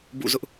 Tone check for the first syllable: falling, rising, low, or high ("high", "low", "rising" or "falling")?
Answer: falling